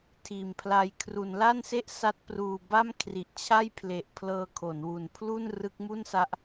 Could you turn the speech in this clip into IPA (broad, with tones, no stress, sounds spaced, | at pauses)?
tʰ iː˨˩ m pʰ l a˧ j kʰ r u˩˦ n l a˥˩ n s e˥˩ ʔ s a˦˥ t̚ p r uː˨˩ b a˥˩ m kʰ r i˨˩ ʔ t͡ɕʰ a˥˩ j pʰ l e˨˩ ʔ pʰ l ɤː˧ kʰ o˩˦ n w u˨˩ n pʰ l u˥˩ n r ɯ˦˥ k̚ m u˥˩ n s a˦˥ ʔ